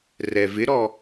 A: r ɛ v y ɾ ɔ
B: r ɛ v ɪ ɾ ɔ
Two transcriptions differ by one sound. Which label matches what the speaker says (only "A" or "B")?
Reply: B